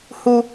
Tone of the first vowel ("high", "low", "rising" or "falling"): high